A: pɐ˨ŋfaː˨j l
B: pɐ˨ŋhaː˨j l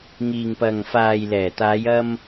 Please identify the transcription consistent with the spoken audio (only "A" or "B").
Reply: A